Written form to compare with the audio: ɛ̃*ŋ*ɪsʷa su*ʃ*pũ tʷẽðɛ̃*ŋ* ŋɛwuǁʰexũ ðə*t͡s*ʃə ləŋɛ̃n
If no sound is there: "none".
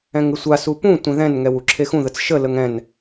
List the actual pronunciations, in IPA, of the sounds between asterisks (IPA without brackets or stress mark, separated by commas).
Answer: ŋ, none, n, t͡s